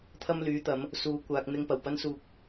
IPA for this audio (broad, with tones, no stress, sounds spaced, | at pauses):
t̪ʰ ɐ˧ m l yː˨˧ t̪ ɐ˨˧ m | s uː˨˧ kʷ aː˨ k̚ n̪ ɪ˧ ŋ p ɐ˨˩ w p ɐ˥ n s uː˧ k̚